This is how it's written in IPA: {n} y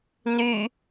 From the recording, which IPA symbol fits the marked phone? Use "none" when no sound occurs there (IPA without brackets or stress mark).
n